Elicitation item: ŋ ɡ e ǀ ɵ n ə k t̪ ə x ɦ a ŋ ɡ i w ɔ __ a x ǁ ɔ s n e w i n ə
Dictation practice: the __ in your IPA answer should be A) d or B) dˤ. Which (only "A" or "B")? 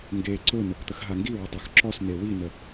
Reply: B